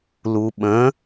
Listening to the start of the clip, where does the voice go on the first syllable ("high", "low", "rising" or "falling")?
low